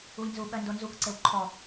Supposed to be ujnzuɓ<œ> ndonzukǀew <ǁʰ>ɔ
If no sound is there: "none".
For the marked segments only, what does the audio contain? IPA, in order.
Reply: œ, ǃʰ

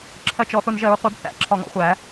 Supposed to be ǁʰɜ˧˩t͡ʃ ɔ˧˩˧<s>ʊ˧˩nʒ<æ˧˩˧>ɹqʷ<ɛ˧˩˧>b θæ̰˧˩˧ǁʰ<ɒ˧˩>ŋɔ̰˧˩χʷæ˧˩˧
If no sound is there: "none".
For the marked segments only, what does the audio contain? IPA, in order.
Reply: θ, ɜ˧˩˧, ɛ˧˩˧, ɒ˧˩

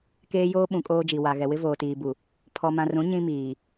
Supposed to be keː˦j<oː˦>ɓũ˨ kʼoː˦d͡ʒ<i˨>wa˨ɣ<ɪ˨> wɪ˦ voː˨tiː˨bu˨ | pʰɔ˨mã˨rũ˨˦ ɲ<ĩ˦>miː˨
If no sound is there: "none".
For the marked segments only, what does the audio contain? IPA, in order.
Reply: oː˦, i˨, ɛ˨, ĩ˦

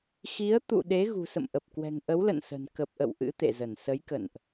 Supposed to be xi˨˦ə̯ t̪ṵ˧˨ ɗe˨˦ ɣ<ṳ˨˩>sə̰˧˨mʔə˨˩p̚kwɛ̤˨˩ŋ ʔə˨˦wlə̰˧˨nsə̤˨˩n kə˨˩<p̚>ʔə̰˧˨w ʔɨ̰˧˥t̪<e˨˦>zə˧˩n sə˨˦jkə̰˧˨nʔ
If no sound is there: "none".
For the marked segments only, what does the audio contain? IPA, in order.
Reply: ṳ˨˩, p̚, ḛ˧˨

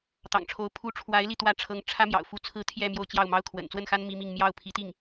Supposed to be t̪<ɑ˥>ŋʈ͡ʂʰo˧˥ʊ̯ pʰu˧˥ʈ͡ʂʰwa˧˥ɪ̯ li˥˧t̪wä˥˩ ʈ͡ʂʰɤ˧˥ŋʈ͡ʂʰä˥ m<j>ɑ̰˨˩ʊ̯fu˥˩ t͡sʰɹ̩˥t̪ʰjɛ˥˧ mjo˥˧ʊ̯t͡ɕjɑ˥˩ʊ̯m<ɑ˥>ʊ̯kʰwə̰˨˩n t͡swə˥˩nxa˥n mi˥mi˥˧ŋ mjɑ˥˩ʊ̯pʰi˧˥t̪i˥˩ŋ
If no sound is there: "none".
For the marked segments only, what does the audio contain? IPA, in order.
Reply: ɑ̰˨˩, j, ɑ˥

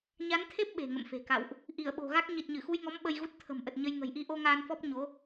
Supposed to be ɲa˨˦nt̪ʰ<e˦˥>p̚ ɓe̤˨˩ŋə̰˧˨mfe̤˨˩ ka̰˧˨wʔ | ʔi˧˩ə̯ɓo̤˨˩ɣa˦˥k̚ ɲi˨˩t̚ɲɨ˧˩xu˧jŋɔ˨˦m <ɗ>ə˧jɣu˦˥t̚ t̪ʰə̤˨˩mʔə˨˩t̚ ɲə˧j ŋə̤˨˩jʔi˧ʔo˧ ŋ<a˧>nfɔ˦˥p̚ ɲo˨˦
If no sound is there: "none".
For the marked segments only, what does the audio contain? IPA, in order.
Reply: e˦˥, ɓ, aː˧

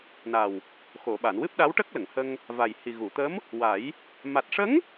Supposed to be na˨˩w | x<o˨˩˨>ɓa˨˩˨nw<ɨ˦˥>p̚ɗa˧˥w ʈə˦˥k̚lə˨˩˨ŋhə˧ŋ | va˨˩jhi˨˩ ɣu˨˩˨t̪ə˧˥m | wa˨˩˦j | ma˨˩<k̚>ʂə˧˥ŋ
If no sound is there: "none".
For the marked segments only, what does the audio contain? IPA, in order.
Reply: o˨˩˨, ɨ˦˥, t̚

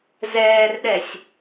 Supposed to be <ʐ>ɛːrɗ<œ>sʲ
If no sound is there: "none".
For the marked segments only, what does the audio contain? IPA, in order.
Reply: z, ɛ

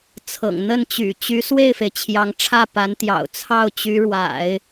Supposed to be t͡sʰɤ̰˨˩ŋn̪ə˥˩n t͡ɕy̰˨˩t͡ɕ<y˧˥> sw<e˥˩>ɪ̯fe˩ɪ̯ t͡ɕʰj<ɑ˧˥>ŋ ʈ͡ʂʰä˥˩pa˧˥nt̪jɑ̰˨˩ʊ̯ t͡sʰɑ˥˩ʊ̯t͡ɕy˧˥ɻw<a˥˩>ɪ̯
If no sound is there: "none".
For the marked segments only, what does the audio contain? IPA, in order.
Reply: y˧˥, e˥˩, ɑ˧˥, a̰˨˩˦

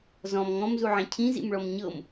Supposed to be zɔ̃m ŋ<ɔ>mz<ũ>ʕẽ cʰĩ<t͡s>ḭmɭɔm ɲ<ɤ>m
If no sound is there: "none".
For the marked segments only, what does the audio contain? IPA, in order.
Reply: ɔ̃, u, z, ɤ

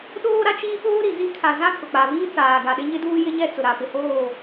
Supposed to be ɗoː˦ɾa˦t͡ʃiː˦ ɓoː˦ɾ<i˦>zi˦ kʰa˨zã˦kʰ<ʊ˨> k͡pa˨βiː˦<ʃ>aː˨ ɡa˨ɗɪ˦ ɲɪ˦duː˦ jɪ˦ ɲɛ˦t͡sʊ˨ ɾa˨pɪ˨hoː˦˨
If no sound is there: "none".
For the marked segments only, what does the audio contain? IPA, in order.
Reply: i˨, ʊ˨, t͡s

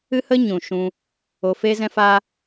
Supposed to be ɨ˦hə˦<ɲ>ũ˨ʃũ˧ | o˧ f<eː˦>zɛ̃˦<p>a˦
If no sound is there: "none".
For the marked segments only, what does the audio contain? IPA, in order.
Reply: ɲ, e˦, f

